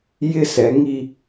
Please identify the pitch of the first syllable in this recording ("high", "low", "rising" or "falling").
high